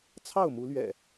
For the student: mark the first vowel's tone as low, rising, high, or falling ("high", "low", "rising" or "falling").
falling